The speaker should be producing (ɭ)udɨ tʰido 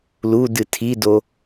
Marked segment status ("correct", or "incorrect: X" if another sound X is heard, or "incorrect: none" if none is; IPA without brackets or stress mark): incorrect: l